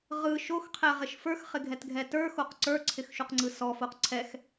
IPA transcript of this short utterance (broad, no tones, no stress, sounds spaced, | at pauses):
ʁ ɯ ʃ o x qʰ ɛ ʁ ɪ ʃ f ə˞ x χ ɪ ɡʱ ɛ t ɡʱ ɛ t ə˞ x o q ǀ ə˞ ǀʰ ɪ x ʃ u q ŋ͡ǀ ɯ s ɔ f o q ǀʰ ɛ x